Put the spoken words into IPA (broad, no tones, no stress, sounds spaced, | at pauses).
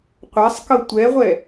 qʷ a sˤ k ɤ tʷ ɛ ʁʷ ɛ